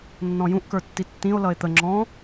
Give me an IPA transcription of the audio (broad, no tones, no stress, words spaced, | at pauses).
nːɔ̃jũʔ kə˞tːitːĩo̯ lʌe̯t̪ə ŋ͡ǁɔ̃